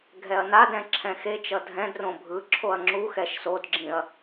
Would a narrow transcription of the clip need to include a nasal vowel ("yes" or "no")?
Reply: yes